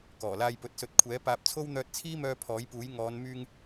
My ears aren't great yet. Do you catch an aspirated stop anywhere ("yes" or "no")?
yes